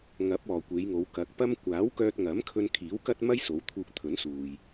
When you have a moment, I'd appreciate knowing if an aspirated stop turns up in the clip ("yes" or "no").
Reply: yes